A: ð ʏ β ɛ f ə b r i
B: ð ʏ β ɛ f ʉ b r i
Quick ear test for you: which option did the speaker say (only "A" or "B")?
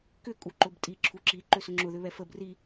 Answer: A